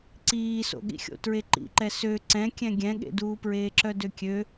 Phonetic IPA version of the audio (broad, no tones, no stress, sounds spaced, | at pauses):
ǀ iː s o̰ ɠ ḭ xʲ o̰ t ɹ e ǃ ḭ ǃ ɛ s ø ǀ ɛ̃ kʲ ɛ̃ ɡʲ ɛ̃ ɠ ḛ d uː p ɹ eː ǁ œ d ø kʲ ø